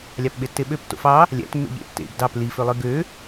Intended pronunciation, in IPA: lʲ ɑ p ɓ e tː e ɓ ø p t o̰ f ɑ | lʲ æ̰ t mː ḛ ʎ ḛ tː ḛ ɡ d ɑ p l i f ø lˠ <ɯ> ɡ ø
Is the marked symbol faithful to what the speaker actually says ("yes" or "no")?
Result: yes